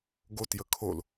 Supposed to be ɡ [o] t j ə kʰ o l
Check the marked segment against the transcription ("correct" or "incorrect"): correct